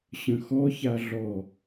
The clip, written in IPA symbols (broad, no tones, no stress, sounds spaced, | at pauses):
ɕ ə̃ x ɔ ç a ɮ ɔ